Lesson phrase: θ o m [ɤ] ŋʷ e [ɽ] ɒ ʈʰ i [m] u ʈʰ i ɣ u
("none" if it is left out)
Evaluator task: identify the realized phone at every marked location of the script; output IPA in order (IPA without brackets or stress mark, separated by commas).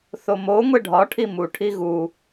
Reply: o, ɖʱ, m